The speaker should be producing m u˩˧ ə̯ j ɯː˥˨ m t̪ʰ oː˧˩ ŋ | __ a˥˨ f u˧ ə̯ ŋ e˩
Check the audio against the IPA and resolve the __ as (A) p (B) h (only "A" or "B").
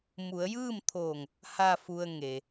B